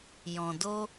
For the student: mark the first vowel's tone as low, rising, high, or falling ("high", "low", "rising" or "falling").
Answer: low